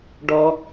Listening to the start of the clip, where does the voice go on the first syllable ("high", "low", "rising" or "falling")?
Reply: high